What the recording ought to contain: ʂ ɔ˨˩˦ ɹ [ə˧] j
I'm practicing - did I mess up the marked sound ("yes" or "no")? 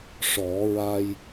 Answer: yes